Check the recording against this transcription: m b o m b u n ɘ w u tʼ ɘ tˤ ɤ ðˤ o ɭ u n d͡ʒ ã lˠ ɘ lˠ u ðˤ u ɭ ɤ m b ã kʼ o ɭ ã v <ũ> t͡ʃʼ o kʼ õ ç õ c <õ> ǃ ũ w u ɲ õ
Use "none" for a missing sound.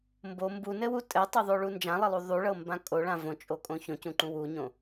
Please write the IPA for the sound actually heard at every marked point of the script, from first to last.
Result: õ, ũ

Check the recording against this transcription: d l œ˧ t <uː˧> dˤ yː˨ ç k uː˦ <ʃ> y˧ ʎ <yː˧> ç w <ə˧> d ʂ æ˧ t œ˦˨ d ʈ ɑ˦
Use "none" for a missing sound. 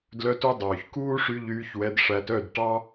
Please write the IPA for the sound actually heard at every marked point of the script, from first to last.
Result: u˧, ʂ, yː˧, ɛ˧

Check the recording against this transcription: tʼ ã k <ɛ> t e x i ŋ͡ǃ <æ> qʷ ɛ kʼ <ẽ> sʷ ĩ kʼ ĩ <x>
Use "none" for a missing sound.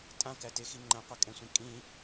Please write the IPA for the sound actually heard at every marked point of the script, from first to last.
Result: æ, æ̃, ɛ̃, none

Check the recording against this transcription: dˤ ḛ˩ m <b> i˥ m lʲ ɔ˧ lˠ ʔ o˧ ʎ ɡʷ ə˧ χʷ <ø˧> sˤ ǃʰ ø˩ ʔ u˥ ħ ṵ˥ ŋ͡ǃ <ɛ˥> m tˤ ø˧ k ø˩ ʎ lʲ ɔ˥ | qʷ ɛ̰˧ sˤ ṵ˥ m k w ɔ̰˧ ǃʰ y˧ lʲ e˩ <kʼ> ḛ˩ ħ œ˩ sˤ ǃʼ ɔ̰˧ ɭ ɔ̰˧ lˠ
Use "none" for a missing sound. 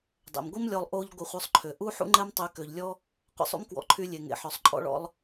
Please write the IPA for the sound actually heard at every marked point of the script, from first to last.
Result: ɡʷ, œ˧, ɛ˥, ŋ

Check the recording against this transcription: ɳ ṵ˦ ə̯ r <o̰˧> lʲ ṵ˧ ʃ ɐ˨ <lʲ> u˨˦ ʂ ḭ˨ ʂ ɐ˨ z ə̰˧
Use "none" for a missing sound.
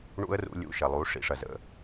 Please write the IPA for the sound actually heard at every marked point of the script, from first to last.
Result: ṵ˧, lˠ

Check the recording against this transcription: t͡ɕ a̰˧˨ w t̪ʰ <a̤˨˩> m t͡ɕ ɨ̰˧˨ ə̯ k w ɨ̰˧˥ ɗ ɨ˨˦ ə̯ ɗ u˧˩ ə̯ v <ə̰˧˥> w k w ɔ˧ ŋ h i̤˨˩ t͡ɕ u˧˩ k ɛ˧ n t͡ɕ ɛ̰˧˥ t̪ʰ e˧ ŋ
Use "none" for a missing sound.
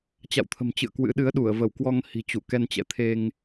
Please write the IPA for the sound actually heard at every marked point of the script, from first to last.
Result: ə̤˨˩, ə˧˩

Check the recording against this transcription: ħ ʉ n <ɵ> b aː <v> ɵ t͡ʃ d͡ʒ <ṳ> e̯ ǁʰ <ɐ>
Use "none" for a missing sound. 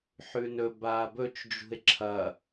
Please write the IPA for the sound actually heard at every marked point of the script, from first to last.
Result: ɵ, b, ṳ, ɐ

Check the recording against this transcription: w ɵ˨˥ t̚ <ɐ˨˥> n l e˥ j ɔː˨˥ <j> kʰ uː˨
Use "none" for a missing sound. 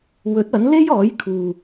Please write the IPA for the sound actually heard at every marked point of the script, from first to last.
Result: ɐ˨˥, j

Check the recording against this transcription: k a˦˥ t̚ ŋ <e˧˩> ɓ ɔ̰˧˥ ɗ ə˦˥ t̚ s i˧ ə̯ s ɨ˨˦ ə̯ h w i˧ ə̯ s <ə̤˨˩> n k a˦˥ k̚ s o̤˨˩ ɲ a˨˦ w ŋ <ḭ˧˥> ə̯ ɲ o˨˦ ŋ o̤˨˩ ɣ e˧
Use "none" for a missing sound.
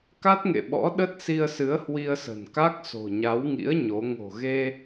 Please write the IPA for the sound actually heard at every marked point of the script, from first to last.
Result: ḛ˧˨, ə̤˨˩, ḭ˧˥

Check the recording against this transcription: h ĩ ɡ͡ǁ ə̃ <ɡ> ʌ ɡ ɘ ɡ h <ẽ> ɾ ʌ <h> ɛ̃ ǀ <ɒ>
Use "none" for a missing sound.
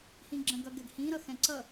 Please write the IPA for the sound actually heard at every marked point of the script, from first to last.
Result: ɡ, ĩ, x, ʌ

